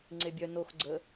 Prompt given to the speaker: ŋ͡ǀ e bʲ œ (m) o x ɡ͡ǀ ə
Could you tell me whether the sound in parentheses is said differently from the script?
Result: yes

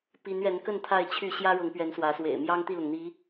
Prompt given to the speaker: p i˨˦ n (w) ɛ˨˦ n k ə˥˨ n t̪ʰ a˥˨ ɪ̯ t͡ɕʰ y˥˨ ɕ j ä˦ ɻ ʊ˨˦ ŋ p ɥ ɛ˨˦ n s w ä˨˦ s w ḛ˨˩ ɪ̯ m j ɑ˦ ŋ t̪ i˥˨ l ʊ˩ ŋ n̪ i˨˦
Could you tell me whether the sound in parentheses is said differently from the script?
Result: yes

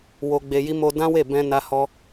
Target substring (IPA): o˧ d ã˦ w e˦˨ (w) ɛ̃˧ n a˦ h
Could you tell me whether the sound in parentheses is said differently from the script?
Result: yes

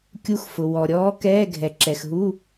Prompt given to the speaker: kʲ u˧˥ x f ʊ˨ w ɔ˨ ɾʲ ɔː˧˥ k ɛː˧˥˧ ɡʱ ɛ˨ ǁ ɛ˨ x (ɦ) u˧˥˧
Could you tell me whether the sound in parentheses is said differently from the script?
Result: no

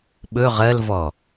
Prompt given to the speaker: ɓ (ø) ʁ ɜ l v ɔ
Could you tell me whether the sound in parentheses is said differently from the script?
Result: yes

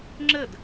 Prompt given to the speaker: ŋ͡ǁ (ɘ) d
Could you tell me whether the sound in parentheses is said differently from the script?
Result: no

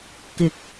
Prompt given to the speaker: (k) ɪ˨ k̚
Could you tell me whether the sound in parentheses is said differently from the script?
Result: no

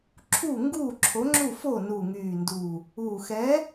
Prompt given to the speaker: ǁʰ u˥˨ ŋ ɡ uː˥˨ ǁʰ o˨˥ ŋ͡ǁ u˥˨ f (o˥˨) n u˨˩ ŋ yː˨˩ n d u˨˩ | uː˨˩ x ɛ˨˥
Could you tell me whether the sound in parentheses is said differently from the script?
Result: no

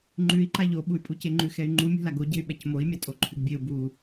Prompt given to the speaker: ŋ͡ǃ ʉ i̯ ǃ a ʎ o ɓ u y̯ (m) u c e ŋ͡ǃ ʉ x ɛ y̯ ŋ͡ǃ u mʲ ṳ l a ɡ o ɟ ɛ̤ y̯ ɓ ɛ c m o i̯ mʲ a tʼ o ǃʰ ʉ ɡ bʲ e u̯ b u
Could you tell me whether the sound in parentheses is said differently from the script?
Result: yes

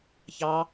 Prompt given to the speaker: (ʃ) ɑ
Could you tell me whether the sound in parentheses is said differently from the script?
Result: yes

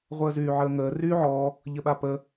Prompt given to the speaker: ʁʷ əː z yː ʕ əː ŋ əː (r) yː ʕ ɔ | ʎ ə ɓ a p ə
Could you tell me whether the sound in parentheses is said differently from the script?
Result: no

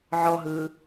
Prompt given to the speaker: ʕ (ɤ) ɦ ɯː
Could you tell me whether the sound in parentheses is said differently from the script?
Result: yes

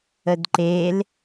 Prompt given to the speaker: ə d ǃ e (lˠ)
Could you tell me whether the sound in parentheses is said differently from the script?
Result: yes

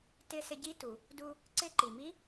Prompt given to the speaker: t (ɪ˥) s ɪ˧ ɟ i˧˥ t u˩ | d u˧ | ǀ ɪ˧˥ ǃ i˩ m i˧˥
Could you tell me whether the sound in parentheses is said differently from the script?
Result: yes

